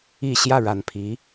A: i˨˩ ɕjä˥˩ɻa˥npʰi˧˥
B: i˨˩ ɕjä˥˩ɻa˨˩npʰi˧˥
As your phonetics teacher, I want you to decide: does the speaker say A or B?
B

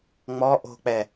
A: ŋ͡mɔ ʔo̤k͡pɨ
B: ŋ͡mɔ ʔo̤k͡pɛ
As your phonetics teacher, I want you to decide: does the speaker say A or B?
B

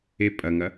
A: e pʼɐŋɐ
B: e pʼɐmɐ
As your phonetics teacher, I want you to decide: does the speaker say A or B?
A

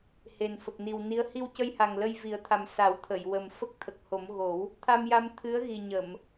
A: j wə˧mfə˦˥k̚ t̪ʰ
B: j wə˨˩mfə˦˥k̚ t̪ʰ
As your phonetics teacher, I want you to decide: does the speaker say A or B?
B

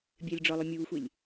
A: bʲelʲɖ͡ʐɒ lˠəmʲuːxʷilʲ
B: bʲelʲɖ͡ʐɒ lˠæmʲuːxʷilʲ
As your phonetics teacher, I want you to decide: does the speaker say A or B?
B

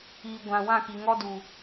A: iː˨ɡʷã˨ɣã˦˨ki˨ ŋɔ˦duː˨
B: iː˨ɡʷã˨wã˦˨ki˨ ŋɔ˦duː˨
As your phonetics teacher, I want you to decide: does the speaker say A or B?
B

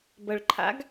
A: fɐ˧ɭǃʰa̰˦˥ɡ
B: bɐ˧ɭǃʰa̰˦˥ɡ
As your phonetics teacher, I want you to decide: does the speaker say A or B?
B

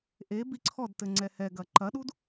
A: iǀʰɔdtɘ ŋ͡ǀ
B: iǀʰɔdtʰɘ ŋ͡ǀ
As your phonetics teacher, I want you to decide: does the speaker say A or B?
A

